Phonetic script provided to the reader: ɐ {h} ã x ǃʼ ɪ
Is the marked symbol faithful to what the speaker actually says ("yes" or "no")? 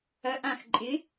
no